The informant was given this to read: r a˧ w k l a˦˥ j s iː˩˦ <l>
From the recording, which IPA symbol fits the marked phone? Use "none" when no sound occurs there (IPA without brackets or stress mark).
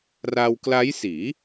none